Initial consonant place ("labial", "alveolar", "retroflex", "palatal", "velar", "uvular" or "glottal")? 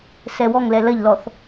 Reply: alveolar